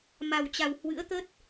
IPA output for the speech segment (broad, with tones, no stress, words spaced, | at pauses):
ma˨˩wt͡ɕa˨˩w hwɨ̰˧˥ə̯t̪ə˦˥t̚